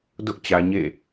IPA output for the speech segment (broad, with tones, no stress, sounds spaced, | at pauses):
d ʊ˦ ʔ t͡ɕ ä˨ ɲ ḛ˦˨